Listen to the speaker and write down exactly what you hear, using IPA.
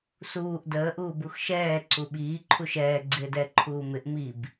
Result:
s uː ʔ d əː ʔ uː b u x ʃ ɛː ǀ u ɓ iː ǃʰ u ʃ ɛː ɡ͡ǀ ɪː d ɛ ǃʰ uː m ɪ ʔ m i b

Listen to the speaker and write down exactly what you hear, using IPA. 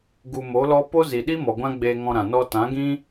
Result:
ɡ u˧ m o˨˦ l ɔ˦ p o˦ z i˨ ɗ i˦ m ɔ˨ ɡʷ ã˦ ɡ͡b eː˧ ŋ ɔ̃˧ ɾ ã˨ n ɔ˧ t ã˨˦ ɡ ĩ˦

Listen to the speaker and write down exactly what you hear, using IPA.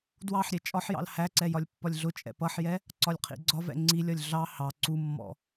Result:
d w ɑ ħ ɾʲ ɛ t͡ʃʼ ɒ ħ j ɑ̰ l h æ ǀ ɛ j ɒ lʲ pː ɒ lʲ ɮ ʊ t͡ʃʼ ɛ̰ p ʌ ħ j ɛ | ǀ ɒ lʲ qʰ ḭ ɡ͡ǀ ɒ v ɛ̰ ŋ͡ǀ i lʲ ɒ lʲ ɮ ɑ h ɑ ǀ u mː ɔ̰

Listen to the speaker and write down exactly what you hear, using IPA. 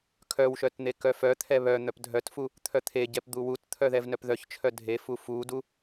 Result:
kʰ œ w ʃ œ t n̪ e k œ f œ t̪ʰ ɛ β œ n̪ œ p dʱ œ t f u | t̪ʰ œ t̪ʰ e ɟ ɛ p d̪ u w u t t̪ʰ œ ð ɛ v n œ p ð œ ç t͡ʃʰ œ dʱ e f u f u d u

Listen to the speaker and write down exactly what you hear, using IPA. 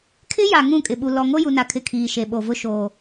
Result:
kʰ ɪ˦ j a˨ ŋ ũ˦˨ kʼ ɪ˨ ɓ u˨ l ɔ˨ ŋ o˦ j u˨ n a˨ kʰ ɪ˨ kʰ iː˨ ʃ e˨ ɓ o˨ v ʊ˦ ʃ o˨

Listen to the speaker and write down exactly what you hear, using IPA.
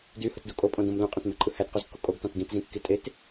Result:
d y h ɯ t d u kʼ o pʼ õ d õ m l ũ qʼ ẽ t m e ǃʼ ɯ h æ t q u z kː u kʼ o ɡ t ɑ̃ t ɡ ĩ t z ĩ kː i tʼ e t

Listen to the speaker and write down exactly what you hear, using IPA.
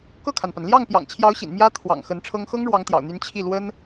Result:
k ɤ˥˩ kʰ a˩ n p a˩ n l j ɑ˥˩ ŋ p j ɑ̰˨˩ ŋ t͡ɕʰ j ɑ˧˥ ʊ̯ ɕ ḭ˨˩ n m j ä˥ t̪ʰ w ɑ̰˨˩ ŋ x ə˧˥ n ʈ͡ʂʰ ɤ˥ ŋ x ɤ˥ ŋ ɻ w ɑ˧˥ ŋ t̪ j ɑ̰˨˩ ʊ̯ n̪ y˧˥ n t͡ɕʰ i˥˩ l w ə˥ n

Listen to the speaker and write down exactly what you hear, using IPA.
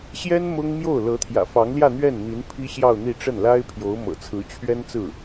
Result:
ɕ j ɛ˥ n m ʊ˥ ŋ m j o˥˩ ʊ̯ l ɤ˧˥ t̪ʰ j ä̰˨˩ f ɑ˧˥ ŋ l j ä˥˧ n̪ ɥ ɛ˥˩ n n̪ i˧˥ n pʰ i˥ ɕ j ɑ˥˧ ʊ̯ n̪ i˥˧ ʈ͡ʂ ə˥˩ n l a˥ ɪ̯ pʰ j o˧˥ ʊ̯ m ɤ̰˨˩ t͡sʰ ɹ̩˧˥ t͡ɕʰ ɥ ɛ˥ n t͡s ɹ̩˥˩

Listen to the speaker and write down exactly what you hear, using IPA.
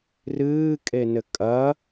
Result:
r ɨː kʼ e n ɘ kʼ ɐ

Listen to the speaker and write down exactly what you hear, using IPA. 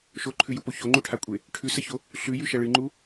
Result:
ʃ o ǃʰ ʉ j u p o ç o ŋ͡ǃ u ʈʰ a kʷʼ e | ʈʰ ʉ s ɐ ç o | ɬ ʉ j ʉ ʃ ɐ ɭ ɨ ŋ͡ǃ u

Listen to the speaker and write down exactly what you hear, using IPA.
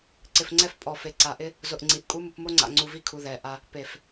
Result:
ǀ ɪ˨ f ŋ͡ǀ ɛ˦ f pʼ ɔ˨ f e˨ ǀ a˨ ʔ ɪ˦ | z ʊ˨ ʔ ŋ͡ǀ i˨ ʔ kʼ u˦ m u˨ p m o˦ ŋ͡ǀ a̰˨ ŋ͡ǀ u˨ v i˦ kʰ u˨ ð ɛ˨ ʔ a˦ | p e˨ f

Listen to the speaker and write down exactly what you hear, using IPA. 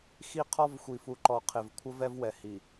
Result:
x i˦ qʰ ɔ˦ v xʷ i˨ f u˨ ǃ ɔ˨ qʰ ɪ˨ v kʷʰ ə˦ v ɛ˦ v w ɛ˨ h i˨

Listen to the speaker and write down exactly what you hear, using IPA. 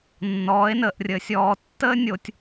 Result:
nː ɔː˨˦ e̯ n əː˨ ʔ rʲ əː˨ sʲ ɔː˨ tː əː˦ nʲ o˨ tʲ

